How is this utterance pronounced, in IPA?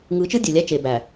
ŋ ɯ˨˦ t͡ʃ ɯ˦ dʲ ø˨ lʲ æ˦ t͡ʃ e˨ b æ˨

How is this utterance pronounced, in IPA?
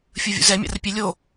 fʲ ɯ vʲ ṵ z ɛ mʲ a̰ r pʲ e lʲ o

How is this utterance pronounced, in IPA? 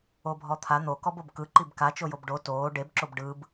o bʱ ɔ t̪ʰ a n̪ o k ɔ b o b k ɯ ǃ i b k a t͡ʃ o j o b ɖ o t oː ɖ e b ǁ o b ɖ ɯ b

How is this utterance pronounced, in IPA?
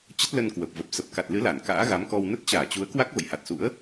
t͡ɕ ə˦˥ t̚ l ə˧ n k w ə˨˩ p̚ v ə˨˩ p̚ s ə˨˩ p̚ k a˨˩ t̚ l ɨ˨˦ l a˧˩ n k a̰ː˧˥ ɣ a˨˦ m k ɔ˧ w n ə˦˥ t̚ t͡ɕ aː˧˩ t͡ɕ u˨˦ ə̯ k w a˦˥ k̚ v ə̰˧˨ j h a˨˩ t̚ s ṵ˧˥ ə̯

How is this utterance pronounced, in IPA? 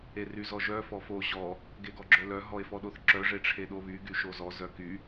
e r y z ɔ ʒ œ f ɔ f o ʑ ɔ | ɡ e ɡ ɔ ɡ͡ǁ œ l œ ɦ ɔ e̯ f ɔ ɗ o θ ǁ œ ʐ e ʈ͡ʂʰ e ɗ o β y ɡ y ʃ o z ɔ z œ k y

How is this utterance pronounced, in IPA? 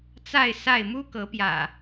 t͡s a˥˨ ɪ̯ s a˥˨ ɪ̯ m u˦ k ɤ˨˦ p j ä̰˨˩

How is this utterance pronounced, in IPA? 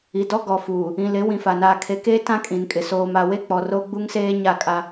i˨ d ɔ˦ ɡ ɔ˨ f uː˨ | ĩ˨ l ɪ˨˦ w ĩ˨ f a˨ n aː˨ kʰ e˨ k eː˦ t ã˦ kʼ ĩ˨ n kʼ ɪ˨ s oː˨ m a˨ w e˦ k͡p ɔ˨ r o˦ ɡ͡b u˦ ŋ s eː˦ ɲ a˦˨ kʼ a˦

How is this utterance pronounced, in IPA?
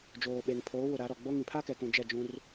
d͡ʒ oː˨ ɓ e˨ ŋ pʰ oː˨˦ w ʊ˨ ɾ a˨˦ ɾ ɔ˨ ɡ͡b o˦ ŋ ĩ˨ pʰ a˦ k ɛ˨ k ũ˨ d͡ʒ ɛ˦˨ d͡ʒ ũ˦ r

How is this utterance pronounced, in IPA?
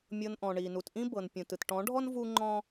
mʲ ɤ˧ n ʔ ɔ̃˨ ɳ i˨ n u˨ t ʔ ĩ˦ b ɤ˨ n pʲ ũ˨ t ɯ˨ t ʈ ɔ̃˨˦ ɖʱ ɔ˦ n v u˦ ŋ͡ǃ ɔ̃˦

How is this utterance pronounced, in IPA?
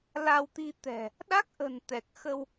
l a˧ w t̪ i˧ t̪ ɛ̤˨˩ | ɗ a˦˥ k̚ ʔ ə̤˨˩ n t̪ ɛ˨˩ k̚ x ə˧ w

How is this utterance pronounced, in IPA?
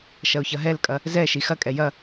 ʃ ɐ ʊ̯ ç ɐ ɦ ɛ l kʼ ɐ | z ɛ ʃ i x ɐ kʼ ɛ j ɐ

